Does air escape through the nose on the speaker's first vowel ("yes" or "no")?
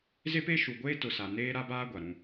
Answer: no